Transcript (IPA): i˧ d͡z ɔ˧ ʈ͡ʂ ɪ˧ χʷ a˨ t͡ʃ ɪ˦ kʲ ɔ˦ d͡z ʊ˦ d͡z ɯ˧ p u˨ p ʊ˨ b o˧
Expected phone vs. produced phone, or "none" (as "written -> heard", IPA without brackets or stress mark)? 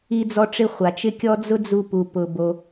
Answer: ɯ˧ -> u˧